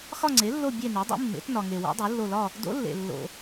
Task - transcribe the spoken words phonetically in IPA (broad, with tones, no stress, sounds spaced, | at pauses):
x ɒ˦˨ ŋ͡ǀ e˩˥ lː o˦˨ bʲ e˦˨ n e˩˥ dˤ ṵ˧˥ mː ḛ˩˥ t n ɒ˨ ŋ e˨ w o̰˧˥ dˤ u˩˥ lː o˦˨ l ɒ˦˨ | d o̰˧˥ lː ḛ˨ lː o̰˨